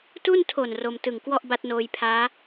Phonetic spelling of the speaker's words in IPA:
t u˥˩ n tʰ o˨˩ n r o˧ m t ɯ˨˩ ŋ k w ɔ˥˩ ʔ b a˦˥ t̚ n oː˧ j pʰ aː˦˥

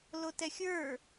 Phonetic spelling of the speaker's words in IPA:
l o t ɛ xʲ ə˞

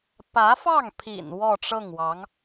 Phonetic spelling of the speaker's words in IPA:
p ä˧˥ f ɑ˥˩ ŋ pʰ ḭ˨˩ n w ɔ˥˧ ʈ͡ʂ ɤ˥˩ ŋ w ɑ˧˥ ŋ

